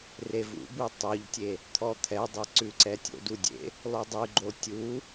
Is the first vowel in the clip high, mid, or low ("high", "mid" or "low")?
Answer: mid